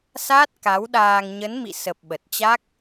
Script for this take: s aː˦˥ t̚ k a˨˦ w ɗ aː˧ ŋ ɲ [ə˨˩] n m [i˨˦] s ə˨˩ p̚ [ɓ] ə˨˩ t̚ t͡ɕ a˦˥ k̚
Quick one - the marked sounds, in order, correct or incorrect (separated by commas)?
incorrect, incorrect, correct